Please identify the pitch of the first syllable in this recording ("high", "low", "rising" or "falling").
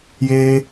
high